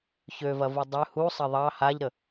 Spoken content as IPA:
çøvɐvu dˤø husˤɐ ðˤɑ haʎɾə

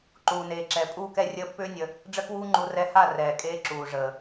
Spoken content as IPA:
ǃuː˨neː˨ǁɛ˨ pʼuː˦kɛ˦rʲəː˦ pːʏː˦nʲə˧ | ɖ͡ʐə˦kwuː˦ŋ͡ǃu˧ rɛ˧ha˦˨ rɛː˨kʼeː˧ ǁuː˨ʐəː˨

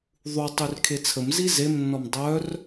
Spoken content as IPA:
ðˤu tˤyrkʰet͡sʰəmzi zemnːɔm dˤœr

